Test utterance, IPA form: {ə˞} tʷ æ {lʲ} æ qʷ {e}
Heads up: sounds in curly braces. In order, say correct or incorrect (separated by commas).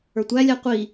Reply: correct, correct, incorrect